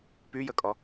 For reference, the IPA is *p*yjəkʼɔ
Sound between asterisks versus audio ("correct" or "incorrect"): correct